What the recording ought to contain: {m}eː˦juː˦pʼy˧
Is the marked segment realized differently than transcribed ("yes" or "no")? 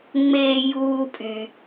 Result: yes